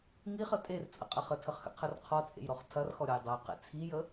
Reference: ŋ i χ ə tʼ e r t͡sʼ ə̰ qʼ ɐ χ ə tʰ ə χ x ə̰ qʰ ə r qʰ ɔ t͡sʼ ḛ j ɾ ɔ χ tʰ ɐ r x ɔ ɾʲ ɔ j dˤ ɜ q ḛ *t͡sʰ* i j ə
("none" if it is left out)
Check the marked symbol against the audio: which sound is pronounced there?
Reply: t͡sʰ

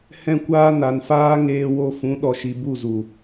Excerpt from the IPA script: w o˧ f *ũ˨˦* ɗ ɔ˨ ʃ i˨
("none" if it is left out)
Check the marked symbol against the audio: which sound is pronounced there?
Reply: ũ˨˦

